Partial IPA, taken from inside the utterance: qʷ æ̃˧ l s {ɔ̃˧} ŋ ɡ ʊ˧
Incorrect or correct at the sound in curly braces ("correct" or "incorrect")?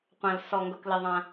incorrect